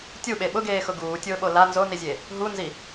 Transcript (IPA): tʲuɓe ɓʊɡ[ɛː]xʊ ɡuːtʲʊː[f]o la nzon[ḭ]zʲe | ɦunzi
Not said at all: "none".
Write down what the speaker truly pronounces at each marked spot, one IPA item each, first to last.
eː, ɓ, i

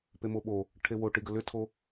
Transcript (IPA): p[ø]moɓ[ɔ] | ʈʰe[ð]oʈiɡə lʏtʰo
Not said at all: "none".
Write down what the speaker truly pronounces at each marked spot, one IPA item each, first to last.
e, o, w

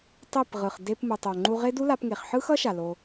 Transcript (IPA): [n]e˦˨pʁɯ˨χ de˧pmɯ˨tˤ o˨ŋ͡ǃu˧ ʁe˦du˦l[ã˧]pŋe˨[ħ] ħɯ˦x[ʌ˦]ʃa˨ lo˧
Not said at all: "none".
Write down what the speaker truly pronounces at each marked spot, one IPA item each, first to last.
tˤ, a˧, χ, ʌ˦

